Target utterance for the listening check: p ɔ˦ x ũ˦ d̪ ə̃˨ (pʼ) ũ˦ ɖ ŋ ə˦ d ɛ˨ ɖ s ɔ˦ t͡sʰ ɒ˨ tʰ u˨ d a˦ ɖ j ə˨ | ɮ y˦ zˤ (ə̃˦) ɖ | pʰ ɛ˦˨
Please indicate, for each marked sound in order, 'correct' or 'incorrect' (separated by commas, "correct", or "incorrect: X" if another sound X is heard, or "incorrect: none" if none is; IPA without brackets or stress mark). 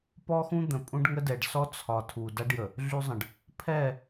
correct, incorrect: ə̃˨